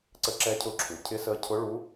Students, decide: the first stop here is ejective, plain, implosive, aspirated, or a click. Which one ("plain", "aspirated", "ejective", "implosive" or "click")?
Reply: click